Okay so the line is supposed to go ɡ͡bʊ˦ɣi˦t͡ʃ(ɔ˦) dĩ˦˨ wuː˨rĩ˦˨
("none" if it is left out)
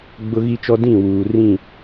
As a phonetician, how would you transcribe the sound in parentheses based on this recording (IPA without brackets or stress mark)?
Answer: ɔ˦